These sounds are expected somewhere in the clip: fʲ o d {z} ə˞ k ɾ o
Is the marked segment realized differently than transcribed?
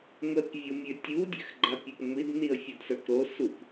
yes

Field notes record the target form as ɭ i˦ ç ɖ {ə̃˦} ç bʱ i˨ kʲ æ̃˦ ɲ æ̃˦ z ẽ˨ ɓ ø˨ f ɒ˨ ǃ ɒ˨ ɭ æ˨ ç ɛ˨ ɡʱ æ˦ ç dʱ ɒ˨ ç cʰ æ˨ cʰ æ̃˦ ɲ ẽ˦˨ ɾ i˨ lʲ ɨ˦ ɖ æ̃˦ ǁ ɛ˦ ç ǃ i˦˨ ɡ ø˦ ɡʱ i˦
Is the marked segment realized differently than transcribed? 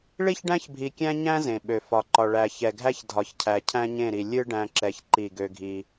yes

